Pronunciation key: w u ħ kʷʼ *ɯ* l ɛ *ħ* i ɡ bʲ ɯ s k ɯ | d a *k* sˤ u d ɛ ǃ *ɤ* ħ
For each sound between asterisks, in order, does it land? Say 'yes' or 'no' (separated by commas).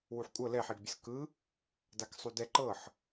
no, yes, yes, yes